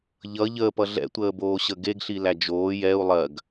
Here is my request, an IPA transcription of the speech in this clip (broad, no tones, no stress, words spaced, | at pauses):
ʎʌ ʎəːpʌ ɮɛ̰tʷəːboːɕə ɡeɡɬilæ d͡ʒoː jɛu̯ lˠɜɡ